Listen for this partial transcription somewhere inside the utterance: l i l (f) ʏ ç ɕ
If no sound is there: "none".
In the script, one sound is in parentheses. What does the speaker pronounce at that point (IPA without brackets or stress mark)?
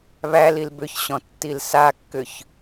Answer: b